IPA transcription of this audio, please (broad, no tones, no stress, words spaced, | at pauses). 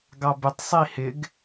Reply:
ɡɑbɪtˤ sˤihɪɡ